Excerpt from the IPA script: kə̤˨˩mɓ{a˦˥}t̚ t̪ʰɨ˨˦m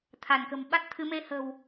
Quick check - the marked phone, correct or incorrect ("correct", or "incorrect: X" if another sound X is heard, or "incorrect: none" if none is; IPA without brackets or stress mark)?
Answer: correct